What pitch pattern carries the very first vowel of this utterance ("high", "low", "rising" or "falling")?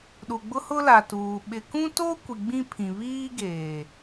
low